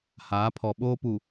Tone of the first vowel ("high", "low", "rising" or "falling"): rising